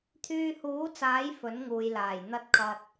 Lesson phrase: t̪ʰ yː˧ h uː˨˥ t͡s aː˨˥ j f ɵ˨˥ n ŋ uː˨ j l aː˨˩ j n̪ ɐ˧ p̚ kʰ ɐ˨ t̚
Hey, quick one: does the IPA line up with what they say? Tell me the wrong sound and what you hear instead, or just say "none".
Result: p̚ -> t̚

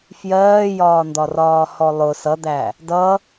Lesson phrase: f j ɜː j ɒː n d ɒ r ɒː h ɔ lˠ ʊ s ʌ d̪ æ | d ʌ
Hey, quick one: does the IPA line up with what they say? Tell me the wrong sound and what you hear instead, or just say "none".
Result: none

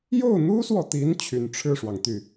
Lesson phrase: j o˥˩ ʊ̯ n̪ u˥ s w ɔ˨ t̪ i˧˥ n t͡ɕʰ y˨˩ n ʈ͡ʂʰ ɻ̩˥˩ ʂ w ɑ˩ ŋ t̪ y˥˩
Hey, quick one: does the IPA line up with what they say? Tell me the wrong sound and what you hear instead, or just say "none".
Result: none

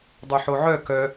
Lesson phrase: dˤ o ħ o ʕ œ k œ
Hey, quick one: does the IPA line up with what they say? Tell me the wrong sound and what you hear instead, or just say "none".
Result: none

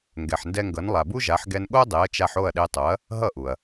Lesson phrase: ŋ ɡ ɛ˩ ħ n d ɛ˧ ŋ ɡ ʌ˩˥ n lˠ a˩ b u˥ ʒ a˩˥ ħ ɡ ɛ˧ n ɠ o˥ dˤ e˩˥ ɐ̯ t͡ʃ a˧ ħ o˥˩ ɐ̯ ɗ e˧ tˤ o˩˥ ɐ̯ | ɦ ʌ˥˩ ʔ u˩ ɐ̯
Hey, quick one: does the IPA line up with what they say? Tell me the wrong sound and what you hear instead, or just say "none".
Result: none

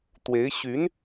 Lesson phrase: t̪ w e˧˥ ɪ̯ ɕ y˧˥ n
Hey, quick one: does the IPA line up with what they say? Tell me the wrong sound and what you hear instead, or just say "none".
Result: none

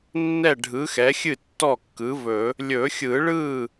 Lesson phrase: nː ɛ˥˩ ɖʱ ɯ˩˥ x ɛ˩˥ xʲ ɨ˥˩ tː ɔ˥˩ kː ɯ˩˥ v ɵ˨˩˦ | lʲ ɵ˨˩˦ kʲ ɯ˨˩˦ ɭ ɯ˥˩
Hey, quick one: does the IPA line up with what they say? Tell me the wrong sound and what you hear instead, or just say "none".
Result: kʲ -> xʲ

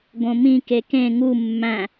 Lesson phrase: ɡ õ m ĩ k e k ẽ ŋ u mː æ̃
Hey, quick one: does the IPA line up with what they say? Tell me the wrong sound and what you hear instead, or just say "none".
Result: none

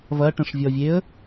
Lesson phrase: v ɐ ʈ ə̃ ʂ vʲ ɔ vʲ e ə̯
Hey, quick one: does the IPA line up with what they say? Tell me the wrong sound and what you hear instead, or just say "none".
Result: none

